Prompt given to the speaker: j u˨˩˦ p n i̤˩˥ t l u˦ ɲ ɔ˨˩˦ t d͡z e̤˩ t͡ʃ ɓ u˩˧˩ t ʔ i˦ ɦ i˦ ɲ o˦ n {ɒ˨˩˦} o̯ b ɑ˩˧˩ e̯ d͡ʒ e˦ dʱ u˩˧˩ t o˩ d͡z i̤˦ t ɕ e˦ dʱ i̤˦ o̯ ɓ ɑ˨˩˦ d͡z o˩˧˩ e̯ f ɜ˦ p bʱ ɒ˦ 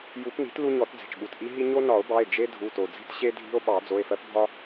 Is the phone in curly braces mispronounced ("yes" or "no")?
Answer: no